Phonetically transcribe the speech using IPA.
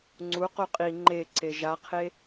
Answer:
ŋ͡ǀuqu qʼi ŋ͡ǃeǀe ʒaqʰe

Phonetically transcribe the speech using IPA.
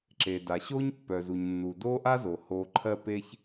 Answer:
ǁe˨da˨ɕo˦ɲ pːœ˨zu˨ɲnːu˨ do˦ʔa˦zo˨ ho˧ ǃʰɜ˦pe˦ç

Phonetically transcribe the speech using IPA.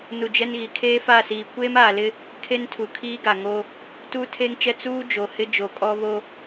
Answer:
nu˨ d͡ʒɛ˦nɣi˨ kʰeː˦fa˦˨siː˨ kʷeː˦maː˨lɪ˦ | kʰe˦ntʰu˨kʰiː˦ɡa˨ ŋo˦ | tuː˦tʰeː˦ŋt͡ʃɛ˦ t͡suː˦ d͡ʒo˨hɪ˦ d͡ʒo˨kʼɔ˦ βo˦

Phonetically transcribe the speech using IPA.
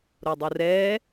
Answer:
ɾodˤurɛː

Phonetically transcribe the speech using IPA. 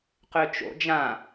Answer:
qøt͡ʃo̰d͡ʒã

